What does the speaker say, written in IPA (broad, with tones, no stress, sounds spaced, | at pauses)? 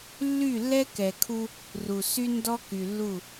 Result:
lː y˦˨ lː ɛ˦ k ɛ˨ kʰ u˦ | r u˨ s y˦ n d ɔ˦ k y˨ lː u˦˨